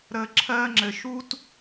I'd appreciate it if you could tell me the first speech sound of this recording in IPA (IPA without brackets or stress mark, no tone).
ɾ